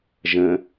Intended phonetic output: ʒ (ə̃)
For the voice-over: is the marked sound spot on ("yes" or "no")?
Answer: yes